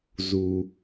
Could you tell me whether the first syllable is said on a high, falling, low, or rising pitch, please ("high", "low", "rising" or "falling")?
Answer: low